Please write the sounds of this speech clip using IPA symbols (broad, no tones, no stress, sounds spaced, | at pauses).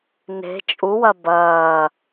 n e̤ t͡ʃʼ u w ɐ b ɐː